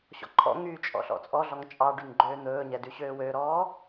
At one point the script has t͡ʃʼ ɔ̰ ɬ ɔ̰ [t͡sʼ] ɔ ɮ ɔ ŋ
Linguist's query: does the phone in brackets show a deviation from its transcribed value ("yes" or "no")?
no